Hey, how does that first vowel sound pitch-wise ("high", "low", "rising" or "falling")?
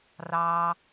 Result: high